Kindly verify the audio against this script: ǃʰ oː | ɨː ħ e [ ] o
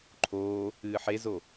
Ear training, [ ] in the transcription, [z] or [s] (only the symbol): z